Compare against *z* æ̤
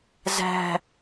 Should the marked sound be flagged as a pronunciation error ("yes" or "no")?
no